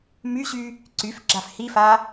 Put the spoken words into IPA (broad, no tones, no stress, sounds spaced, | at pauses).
m y ɕ y | ǀ y f ɡ͡ǁ a f h i f a